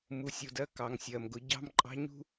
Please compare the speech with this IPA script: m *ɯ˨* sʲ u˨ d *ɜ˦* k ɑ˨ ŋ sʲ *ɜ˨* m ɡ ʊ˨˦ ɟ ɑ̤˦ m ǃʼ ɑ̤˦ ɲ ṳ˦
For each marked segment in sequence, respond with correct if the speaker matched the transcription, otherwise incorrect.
incorrect: u˨, correct, correct

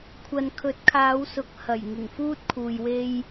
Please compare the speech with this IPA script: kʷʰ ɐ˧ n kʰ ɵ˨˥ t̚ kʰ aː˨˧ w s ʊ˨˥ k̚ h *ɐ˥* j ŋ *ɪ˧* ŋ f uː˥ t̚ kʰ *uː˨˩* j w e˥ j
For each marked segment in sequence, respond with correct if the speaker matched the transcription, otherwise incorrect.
incorrect: ɐ˨˩, incorrect: ɪ˨˩, incorrect: uː˨

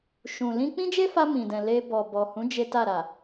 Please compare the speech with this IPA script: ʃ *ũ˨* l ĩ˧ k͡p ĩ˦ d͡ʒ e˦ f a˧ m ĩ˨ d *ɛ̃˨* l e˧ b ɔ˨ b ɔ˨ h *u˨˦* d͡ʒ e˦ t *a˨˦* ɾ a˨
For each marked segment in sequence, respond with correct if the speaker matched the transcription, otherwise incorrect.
correct, correct, incorrect: ũ˨˦, incorrect: a˦˨

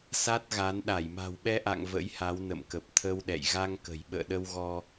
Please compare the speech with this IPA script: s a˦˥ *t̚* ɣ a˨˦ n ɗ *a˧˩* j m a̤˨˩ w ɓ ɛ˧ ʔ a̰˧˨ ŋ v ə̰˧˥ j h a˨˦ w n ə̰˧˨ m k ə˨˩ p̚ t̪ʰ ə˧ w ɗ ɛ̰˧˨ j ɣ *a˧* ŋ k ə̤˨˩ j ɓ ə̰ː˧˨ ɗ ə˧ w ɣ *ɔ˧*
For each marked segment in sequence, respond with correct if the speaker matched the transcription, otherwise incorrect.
correct, correct, correct, correct

